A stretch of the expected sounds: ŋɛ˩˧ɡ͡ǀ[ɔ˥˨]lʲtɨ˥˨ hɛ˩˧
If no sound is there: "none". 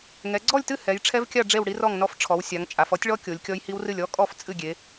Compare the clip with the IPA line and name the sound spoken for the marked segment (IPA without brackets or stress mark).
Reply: ɔ˥˨